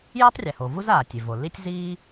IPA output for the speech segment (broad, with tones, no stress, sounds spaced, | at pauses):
j a˥ tˤ rʲ ɛ˩ h o˩ v u˥ z aː˩ tʲ e˩ v o˩ l i˥ tʲ z iː˥